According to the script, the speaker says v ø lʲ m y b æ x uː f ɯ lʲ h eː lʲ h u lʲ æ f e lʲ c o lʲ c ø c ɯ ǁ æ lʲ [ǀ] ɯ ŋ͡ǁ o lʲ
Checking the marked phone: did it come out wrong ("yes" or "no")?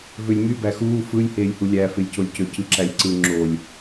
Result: no